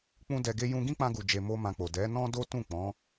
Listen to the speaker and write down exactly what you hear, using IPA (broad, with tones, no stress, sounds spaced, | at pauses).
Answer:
k͡p ũ˦ d ɛ˧ ɡ e˦ j ũ˧ ɡ ĩ˦ k͡p ã˧ ɡ u˨ d͡ʒ e˧ m o˦ m ã˧ k͡p o˨ d ɛ˨˦ n ɔ̃˦ d o˦ t ũ˦˨ k͡p ɔ̃˨˦